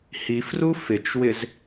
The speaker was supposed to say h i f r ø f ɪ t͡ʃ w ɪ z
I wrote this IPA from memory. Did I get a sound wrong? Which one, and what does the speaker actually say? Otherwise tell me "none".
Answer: ø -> u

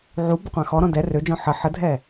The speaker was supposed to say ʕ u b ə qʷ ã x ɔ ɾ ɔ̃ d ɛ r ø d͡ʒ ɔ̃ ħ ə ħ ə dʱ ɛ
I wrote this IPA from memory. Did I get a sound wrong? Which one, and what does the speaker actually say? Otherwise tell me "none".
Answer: none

